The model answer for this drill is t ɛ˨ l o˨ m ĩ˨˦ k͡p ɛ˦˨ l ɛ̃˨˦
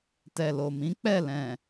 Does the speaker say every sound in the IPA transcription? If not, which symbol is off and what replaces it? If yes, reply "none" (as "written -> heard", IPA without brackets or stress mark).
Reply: ɛ̃˨˦ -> ɛ̃˨